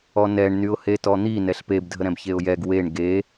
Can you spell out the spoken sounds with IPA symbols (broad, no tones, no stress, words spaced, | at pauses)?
ɔnɛɳnyʊ̯ hetɔn̪i nɛɬpebdʱə ɾɛ̃bçeʊ̯jɛɡ weɳ ɡe